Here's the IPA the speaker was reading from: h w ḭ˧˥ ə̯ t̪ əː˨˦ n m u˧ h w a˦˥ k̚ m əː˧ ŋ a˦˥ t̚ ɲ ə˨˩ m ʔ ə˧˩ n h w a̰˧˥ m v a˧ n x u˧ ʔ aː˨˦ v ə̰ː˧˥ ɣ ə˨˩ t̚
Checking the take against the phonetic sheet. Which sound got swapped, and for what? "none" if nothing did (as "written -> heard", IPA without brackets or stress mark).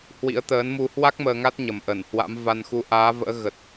none